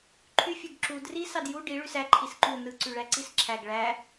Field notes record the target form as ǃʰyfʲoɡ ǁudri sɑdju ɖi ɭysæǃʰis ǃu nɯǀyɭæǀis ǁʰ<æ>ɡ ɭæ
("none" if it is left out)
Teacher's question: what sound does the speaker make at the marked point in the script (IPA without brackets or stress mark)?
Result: æ